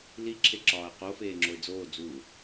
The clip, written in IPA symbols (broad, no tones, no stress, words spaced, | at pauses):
liǁʰeǁɒːə̯ qofeːŋ͡ǁoɪ̯ d͡zoː d͡zu